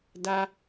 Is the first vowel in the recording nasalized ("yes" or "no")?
no